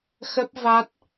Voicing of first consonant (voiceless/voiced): voiceless